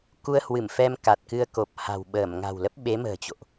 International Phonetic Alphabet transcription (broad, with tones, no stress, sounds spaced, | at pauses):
k u˧ ə̯ h w ɨ˧˩ m f ɛ˧ m k a˨˩ t̚ k ɨ˧ ə̯ k o˨˩ p̚ h a̤˨˩ w ɓ əː˧˩ m ŋ a̤˨˩ w l ə˦˥ p̚ ɓ e˨˦ m ə̤ː˨˩ t͡ɕ o̰˧˨ ʔ